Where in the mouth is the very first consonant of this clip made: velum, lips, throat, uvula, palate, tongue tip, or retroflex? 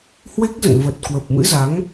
throat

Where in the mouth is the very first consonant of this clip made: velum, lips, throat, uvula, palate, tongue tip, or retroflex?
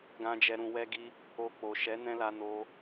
velum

